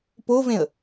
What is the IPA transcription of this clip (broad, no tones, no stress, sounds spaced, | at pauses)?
p o v ẽ ə̯